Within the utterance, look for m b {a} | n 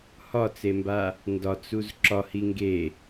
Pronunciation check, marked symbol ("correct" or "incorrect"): correct